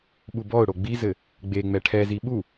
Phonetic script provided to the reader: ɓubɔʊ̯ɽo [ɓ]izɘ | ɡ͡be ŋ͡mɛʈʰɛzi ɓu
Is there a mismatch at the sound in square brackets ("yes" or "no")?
yes